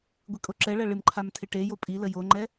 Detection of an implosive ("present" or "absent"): absent